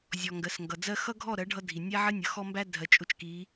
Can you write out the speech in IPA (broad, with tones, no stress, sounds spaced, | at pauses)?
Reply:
zʲ ɔ˨ ŋ ɡ ɜ˨ s ŋ ɡ ʌ˨ d͡z ɜ˦ x ʌ˦ ɡʱ ɔ˦˨ ɾ ɜ˨˦ ɖʱ ʌ˦ dʱ i˨ nʲ æ˦ ʕ ɜ˦ nʲ ʌ˨ x ɔ˦ m b æ˦ dʱ ɜ˨ t͡ʃʼ ʊ˦ t͡ʃ k i˨˦